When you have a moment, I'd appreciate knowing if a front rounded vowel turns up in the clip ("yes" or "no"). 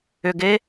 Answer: yes